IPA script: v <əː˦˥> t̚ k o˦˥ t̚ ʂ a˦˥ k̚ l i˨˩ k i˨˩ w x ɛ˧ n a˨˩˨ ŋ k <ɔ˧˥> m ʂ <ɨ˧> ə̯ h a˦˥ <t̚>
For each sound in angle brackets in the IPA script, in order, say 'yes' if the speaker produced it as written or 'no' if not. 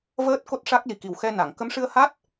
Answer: yes, no, yes, yes

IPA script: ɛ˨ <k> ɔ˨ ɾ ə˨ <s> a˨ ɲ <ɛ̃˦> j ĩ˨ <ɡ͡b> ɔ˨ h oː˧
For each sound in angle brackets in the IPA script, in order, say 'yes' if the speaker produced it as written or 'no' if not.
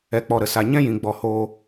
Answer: no, yes, yes, yes

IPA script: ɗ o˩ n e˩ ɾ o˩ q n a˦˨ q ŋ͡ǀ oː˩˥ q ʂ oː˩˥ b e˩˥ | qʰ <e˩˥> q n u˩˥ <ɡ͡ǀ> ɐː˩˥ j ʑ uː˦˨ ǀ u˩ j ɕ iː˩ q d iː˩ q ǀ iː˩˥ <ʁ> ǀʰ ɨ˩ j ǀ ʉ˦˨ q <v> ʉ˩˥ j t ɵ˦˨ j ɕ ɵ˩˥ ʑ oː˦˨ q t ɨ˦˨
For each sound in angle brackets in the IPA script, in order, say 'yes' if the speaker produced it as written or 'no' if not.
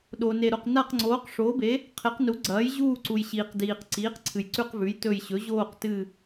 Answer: yes, yes, no, yes

